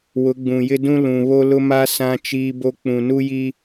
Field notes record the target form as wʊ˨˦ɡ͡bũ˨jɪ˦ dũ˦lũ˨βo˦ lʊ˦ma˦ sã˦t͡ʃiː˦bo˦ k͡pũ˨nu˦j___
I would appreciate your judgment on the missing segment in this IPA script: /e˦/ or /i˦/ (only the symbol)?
i˦